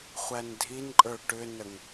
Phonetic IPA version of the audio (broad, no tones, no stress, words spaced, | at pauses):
χʷændʱinǃʼə˞ ʈʏnəŋ